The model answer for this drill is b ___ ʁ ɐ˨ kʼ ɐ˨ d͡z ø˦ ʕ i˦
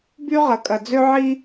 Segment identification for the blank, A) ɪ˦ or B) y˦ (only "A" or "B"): B